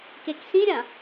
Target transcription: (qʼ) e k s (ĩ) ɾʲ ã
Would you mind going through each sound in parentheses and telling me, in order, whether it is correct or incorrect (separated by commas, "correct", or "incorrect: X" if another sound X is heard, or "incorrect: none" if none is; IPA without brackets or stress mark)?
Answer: incorrect: k, correct